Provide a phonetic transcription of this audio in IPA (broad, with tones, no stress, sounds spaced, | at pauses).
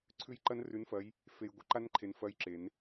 ǀʰ ʉ˦˨ j ǃ ɐ˦˥ n r ʉ˨˥ n f ɐ˨˥ j | f e˨ j ɡʷ ɨ˦˨ ǃ a˦˥ n ǃʰ e˨ n f ɐ˦˥ j ǁ e˨˩˦ n